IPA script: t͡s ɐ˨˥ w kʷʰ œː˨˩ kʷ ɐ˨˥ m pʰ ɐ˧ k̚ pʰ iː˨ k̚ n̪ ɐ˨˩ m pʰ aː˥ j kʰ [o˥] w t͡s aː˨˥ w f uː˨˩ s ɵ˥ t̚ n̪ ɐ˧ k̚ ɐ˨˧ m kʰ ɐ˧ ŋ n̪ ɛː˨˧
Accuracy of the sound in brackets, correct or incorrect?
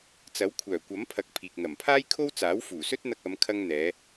correct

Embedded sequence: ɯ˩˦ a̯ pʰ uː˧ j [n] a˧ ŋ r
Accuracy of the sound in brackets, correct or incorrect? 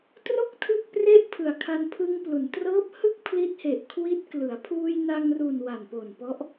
correct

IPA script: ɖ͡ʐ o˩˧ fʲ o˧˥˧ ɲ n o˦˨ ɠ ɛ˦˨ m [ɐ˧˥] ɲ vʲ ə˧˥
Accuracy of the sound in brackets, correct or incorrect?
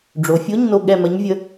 correct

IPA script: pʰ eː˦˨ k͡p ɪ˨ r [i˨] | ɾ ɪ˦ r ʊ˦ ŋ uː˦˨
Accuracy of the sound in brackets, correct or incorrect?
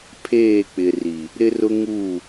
correct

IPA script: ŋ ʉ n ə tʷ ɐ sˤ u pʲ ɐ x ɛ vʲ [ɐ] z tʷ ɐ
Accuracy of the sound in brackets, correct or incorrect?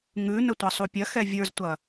incorrect: ə˞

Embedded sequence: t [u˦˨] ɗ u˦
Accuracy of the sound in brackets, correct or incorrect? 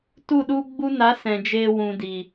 correct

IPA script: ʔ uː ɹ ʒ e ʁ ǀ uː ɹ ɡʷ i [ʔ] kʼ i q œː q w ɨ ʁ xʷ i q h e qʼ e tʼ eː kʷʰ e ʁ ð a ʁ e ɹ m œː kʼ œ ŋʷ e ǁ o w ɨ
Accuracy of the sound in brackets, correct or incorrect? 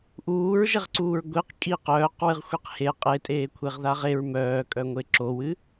incorrect: q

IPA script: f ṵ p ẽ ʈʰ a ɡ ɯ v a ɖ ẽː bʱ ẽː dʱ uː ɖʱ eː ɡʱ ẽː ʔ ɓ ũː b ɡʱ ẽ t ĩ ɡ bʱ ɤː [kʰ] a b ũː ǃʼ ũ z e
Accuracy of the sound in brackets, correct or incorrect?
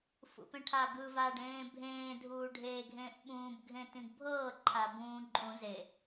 incorrect: ǃʰ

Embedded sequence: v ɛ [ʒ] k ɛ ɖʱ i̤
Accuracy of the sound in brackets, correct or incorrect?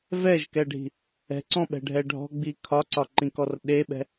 correct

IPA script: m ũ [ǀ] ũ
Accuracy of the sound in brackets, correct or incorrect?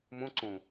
correct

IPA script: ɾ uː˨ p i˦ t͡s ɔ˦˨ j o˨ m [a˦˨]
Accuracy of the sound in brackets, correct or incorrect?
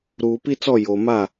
correct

